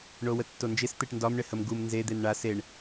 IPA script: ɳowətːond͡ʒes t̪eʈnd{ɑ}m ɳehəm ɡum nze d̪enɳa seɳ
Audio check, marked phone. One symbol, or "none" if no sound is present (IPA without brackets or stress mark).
ɒ